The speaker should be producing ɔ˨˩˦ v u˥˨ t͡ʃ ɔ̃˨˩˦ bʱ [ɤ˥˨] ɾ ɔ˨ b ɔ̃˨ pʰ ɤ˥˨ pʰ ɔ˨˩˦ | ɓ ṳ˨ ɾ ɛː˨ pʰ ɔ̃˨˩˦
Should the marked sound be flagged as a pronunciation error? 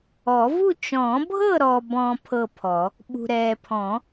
no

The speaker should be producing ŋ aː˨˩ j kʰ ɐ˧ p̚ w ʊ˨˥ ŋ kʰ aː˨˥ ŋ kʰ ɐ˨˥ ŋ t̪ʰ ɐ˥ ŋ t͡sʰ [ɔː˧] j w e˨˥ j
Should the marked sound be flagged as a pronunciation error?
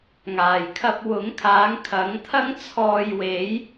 no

